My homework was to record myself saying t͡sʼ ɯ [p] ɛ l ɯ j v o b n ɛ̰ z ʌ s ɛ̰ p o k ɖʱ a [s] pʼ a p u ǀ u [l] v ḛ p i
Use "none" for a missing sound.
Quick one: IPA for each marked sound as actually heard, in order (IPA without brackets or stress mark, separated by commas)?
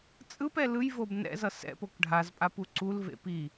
p, z, l